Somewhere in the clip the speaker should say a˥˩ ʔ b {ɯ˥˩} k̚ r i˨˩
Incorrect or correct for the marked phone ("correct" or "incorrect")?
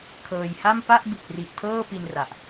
incorrect